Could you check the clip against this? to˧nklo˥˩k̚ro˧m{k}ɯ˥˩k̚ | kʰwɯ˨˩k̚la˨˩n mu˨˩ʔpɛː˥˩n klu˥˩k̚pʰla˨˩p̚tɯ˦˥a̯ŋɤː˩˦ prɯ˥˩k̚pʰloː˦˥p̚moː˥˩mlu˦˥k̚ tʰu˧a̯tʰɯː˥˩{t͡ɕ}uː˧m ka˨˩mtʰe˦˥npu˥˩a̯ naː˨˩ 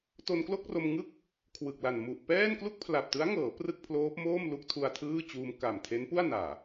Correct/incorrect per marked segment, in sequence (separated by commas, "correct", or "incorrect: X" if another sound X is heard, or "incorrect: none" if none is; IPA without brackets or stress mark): incorrect: ŋ, correct